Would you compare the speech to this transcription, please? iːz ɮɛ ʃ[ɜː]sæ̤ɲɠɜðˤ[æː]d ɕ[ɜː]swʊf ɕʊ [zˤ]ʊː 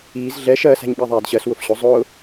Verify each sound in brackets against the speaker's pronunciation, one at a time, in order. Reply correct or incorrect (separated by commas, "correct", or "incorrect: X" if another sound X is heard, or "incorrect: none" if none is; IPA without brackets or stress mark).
correct, correct, incorrect: ɜ, correct